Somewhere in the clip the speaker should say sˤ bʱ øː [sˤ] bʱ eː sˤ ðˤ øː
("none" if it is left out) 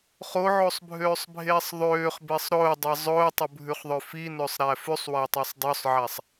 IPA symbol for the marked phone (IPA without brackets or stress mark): sˤ